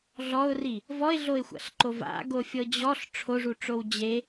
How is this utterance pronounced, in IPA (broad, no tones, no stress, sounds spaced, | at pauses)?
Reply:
ɮ ɔ ʊ̯ r i | v ɔ ɪ̯ ɮ o ɪ̯ xʷ a̰ ɬ ǃ o v a̰ ɡ o fʲ ɤ d͡ʑ ɔ ɬ ʈ͡ʂʰ o ʐ u ʈ͡ʂ o w d͡ʑ e